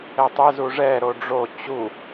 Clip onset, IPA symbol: ɛ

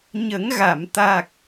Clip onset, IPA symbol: ɲ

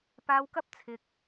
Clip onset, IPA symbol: p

